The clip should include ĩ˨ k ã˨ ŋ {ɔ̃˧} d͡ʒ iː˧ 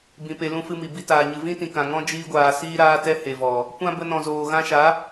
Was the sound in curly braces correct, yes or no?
no